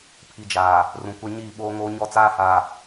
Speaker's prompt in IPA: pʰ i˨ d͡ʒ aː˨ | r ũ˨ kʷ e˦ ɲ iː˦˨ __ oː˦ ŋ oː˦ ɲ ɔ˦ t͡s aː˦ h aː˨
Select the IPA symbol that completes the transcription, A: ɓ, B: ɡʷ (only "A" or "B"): A